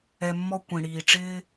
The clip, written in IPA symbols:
ɛ˧mːɔ˦ kʷĩ˨ɽiː˨ʈ͡ʂɪː˦

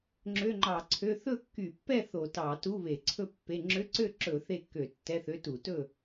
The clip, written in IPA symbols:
ŋ͡ǁø˧˥˧ŋ͡ǃɑ˧˩˧ǀʰø˧˥˧ θɵ˥˨kːy˧˩˧pːɛ˥˨ θo˧˩˧ tɑ˧˩˧tu˧˥˧βe˧˩˧ǀʰɵ˥˨ pːe˧˥˧ ŋ͡ǁø˧˥˧ǀø˥˨ǁɵ˧˩˧ θe˥˨kːø˧˩˧tːɛ˧˥˧θø˧˥˧ tu˧˩˧tɵ˥˨

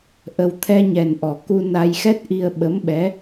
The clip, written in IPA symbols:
ʔə˨˩wt̪ʰɛ˧ɲɛ˨˩nʔɔ˨˩˨ ku˧na˧jxɛ˦˥t̚ʔi˧ə̯ ɓə˧˥mɓɛ˧˥

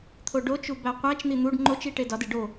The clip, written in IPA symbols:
t̪ʰoɖot͡ʃu bæqʷæt͡ʃn̪i n̪uɖ ŋ͡ǃot͡ʃi ʈedɒde ɖo

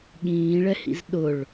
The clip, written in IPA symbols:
ɠĩːɭɛhḭz ɗʊɭ

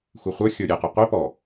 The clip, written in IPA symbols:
xʷeχʷə˞ xʲə˞ɾʲɛqɛ qʷe pɔ

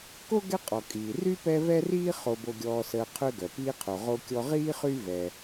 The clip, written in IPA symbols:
ko˥ɡɛ˦ qʼɔ˩ kʼiː˩ ry˥pɛ˦ vɛ˥riː˥ χo˨bo˨ɡʲɔː˨səː˨ qʰø˦ɡœ˩piː˦qʰo˨ ʁo˦kʲɔ˦ ʁiː˥ χy˥vɛ˨

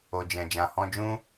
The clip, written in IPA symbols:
o˨d͡ʒɛ̃˨ d͡ʒã˨hɔ̃˧d͡ʒũ˦

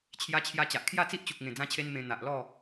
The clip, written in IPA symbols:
t͡ɕʰja˧t͡ɕʰja˧ t͡ɕa˨ʔkʰja˥˧t͡si˦ʔt͡ɕu˨k̚ ŋẽ˨˩d͡zã˧t͡ɕʰe˧n mẽ˧ n̪a˨ʔlɔ˥˧

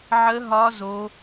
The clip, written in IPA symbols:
ʕə˦˥ɦɒ˦˥zo˦˥

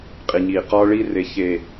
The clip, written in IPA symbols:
qʼi˨ɲiː˨ qɒː˦ɭi˦re˨ çe˨

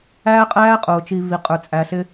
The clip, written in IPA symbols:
æː˦qʼæː˦qʼʊː˨t͡ʃi˨ vi˨qʼə˞˨ t͡sʼæ˨ɬɪ˧

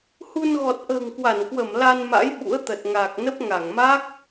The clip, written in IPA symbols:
hu˧n ɣɔ˨˩t̚ʔə̤ː˨˩ŋkwa˧˩nkwə˧˩m la˧nma̰˧˥j ɓṵ˧˥ə̯t̪ə˨˩t̚ŋaː˨˩k̚nə˦˥p̚ ŋa˧˩ŋma˦˥k̚

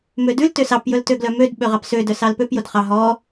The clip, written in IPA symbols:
mødʉl tøsɑp jɵltøɡlœmød ɓøʁɑpsø dœsɑlpøp jodχɑ ɦɔ

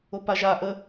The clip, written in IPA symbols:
opaʒa ʔə

